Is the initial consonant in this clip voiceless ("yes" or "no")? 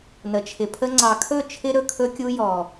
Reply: no